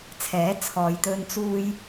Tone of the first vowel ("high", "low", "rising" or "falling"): rising